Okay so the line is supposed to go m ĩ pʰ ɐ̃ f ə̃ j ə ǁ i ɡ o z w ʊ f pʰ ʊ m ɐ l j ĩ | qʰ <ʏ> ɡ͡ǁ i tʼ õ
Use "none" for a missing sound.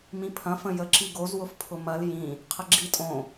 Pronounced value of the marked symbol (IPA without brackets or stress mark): ə